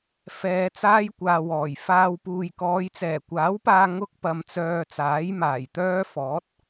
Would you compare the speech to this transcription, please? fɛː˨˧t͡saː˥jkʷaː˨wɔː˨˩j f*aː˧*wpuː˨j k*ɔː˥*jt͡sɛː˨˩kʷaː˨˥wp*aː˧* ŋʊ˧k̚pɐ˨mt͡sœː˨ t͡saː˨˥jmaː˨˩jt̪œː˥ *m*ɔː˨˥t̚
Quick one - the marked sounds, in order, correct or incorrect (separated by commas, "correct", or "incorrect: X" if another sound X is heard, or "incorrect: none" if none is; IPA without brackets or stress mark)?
correct, incorrect: ɔː˨˧, correct, incorrect: f